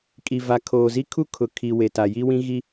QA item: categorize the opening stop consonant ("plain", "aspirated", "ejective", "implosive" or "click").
ejective